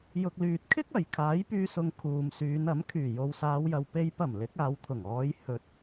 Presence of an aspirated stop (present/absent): present